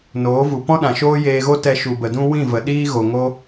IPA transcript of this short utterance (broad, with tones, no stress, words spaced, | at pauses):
noː˨˦vu˨ pɔ̃˦ɗã˨ʃoː˦ jeː˧ɣo˦tɛ˧ ʃu˨bə˨dũ˦ wĩ˦˨və˨ɗiː˦ɣo˨ ŋo˦